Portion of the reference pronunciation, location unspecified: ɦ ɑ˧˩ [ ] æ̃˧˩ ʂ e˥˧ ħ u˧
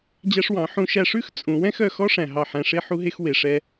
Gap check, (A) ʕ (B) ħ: B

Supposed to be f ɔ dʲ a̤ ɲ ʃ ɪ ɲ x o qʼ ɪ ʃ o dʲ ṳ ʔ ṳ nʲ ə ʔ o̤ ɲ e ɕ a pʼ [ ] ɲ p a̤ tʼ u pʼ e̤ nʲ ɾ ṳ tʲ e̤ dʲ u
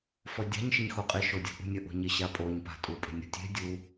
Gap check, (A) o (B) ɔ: A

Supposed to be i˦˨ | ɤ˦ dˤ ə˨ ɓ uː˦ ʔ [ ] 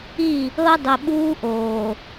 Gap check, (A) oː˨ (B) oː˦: A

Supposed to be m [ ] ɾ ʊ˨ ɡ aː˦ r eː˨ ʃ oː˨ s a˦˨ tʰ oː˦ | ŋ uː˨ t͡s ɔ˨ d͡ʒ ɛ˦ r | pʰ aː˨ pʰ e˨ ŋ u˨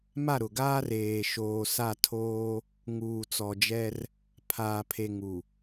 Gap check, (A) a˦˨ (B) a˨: A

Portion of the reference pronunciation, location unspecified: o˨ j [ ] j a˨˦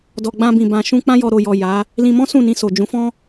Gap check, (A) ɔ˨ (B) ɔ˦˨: A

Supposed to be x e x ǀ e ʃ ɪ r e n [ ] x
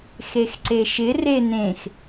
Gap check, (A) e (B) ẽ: B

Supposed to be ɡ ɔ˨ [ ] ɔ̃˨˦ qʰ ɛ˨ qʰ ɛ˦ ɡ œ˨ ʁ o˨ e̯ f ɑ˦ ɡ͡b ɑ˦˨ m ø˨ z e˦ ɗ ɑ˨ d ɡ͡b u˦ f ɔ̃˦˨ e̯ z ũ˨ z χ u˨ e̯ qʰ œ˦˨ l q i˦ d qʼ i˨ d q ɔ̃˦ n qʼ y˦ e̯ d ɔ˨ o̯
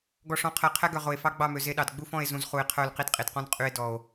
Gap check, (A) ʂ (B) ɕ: A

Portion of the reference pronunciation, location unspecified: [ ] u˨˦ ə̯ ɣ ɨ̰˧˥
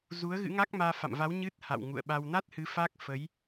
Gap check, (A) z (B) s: A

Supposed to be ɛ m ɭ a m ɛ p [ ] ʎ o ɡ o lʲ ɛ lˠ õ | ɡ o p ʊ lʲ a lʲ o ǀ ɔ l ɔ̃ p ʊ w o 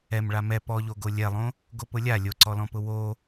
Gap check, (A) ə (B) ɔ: B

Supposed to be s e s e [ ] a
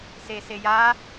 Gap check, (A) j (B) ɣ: A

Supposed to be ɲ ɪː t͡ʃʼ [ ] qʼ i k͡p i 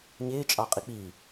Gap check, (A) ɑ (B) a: A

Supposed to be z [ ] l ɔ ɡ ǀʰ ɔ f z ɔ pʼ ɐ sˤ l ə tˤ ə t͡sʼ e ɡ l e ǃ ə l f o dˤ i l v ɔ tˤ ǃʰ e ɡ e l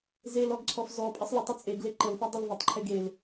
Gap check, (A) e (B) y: A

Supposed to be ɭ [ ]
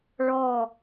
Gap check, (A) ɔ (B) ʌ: A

